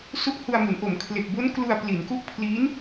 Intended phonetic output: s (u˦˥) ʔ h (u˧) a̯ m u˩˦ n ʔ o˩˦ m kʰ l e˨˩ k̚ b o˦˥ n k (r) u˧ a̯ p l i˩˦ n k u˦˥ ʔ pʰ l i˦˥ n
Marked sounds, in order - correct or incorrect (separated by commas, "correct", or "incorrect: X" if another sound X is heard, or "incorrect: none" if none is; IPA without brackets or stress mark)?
correct, correct, incorrect: l